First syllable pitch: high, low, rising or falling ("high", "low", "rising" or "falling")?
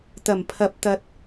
low